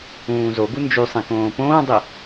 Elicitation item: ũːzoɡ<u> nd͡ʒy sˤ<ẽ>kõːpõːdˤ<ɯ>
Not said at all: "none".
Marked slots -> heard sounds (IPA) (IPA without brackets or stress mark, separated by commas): u, ẽ, ɯ